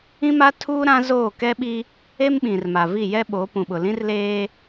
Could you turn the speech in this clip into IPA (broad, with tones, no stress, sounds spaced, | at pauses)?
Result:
ĩ˦ m a˦ tʰ uː˦ ɾ ã˦ z oː˦˨ k ɛ˦ ɓ i˦ | e˦ m ɓ ĩ˨ r m a˨ v i˦˨ j ɛ˦ ɓ o˨˦ p ũ˨ ɓ ʊ˨ l ĩ˦ r l eː˦